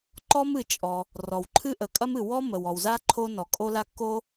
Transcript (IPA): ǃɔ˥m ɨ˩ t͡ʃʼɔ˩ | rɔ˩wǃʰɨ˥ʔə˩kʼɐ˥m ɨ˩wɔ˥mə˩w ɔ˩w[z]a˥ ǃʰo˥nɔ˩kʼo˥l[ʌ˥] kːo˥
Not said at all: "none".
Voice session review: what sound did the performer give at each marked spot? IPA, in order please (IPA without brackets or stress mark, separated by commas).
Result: z, a˥